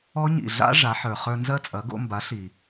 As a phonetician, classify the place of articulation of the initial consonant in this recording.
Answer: palatal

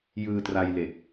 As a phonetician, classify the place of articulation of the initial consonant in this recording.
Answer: palatal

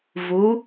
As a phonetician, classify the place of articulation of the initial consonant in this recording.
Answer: labial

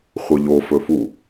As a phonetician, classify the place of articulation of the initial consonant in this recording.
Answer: uvular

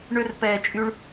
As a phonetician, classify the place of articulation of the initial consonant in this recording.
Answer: retroflex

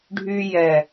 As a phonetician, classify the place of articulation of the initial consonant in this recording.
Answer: retroflex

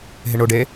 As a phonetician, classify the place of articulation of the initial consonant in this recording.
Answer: glottal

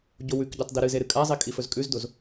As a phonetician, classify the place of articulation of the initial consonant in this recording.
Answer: palatal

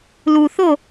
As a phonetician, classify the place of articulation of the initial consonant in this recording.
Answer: alveolar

